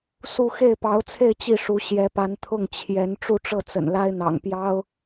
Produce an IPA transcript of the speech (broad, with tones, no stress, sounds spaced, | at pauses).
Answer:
s u˥˧ x e˥˩ ɪ̯ p ɑ˧˥ ʊ̯ t͡sʰ e˥˧ ɪ̯ t͡ɕ i˥˩ ʂ u˧˥ ɕ j ɛ˧˥ p a˧˥ n t̪ʰ ʊ˥˩ ŋ t͡ɕʰ j ɛ˧˥ n ʈ͡ʂ u˥˧ ʈ͡ʂ ɤ˥˩ t͡s ə̰˨˩ n l a˥ ɪ̯ n̪ ɑ̰˨˩ ŋ p j ɑ˥ ʊ̯